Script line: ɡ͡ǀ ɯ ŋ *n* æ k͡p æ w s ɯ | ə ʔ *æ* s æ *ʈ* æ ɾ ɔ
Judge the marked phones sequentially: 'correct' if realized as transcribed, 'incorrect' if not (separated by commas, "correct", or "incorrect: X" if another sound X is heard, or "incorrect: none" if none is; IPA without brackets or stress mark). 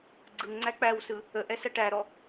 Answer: incorrect: ŋ͡ǀ, incorrect: ɛ, correct